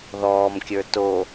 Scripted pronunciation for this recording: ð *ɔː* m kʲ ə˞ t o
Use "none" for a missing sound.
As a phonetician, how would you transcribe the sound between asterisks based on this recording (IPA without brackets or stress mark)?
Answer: ɔː